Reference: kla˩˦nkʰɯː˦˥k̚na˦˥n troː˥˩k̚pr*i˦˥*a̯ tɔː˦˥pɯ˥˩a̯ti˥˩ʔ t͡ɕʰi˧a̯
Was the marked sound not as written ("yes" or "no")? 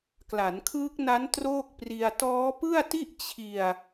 yes